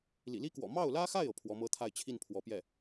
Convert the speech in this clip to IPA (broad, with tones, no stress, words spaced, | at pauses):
lḭ˨˩li˥kwɔ̰˨˩ mɑ˥˩ʊ̯lä˥xa˥˩ɪ̯ɤ˩ pʰwɔ˧˥mɤ˥t̪ʰa˥˧ɪ̯ t͡ɕʰi˥˩n pʰwɔ˧˥pjɛ˥˩